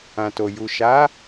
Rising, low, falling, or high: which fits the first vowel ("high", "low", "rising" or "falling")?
low